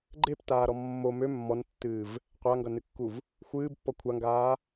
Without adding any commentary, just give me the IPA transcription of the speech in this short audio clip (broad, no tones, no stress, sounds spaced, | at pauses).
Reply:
ɡ͡ǃ e p t aː ɾ ɔ mː o m ø mː ɔ n tː ɨː v | qʷ a ŋ ɡ ʌ n ɨ kː u v | xʷ ɨː b pː ɔ kʷʰ a ŋ ɡ aː